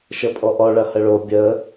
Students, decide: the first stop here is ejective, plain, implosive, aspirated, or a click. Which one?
ejective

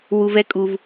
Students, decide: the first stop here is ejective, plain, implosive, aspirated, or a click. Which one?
ejective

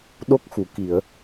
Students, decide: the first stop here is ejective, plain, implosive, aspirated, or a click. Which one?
implosive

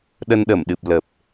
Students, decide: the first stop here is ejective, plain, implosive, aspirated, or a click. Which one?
implosive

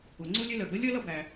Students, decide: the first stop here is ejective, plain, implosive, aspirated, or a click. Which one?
click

